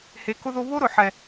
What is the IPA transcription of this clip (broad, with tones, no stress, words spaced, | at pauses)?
he˨kʊ˦ðo˦ βo˦ɾʊ˨ħɛ˨